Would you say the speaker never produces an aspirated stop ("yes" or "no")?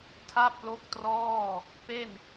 no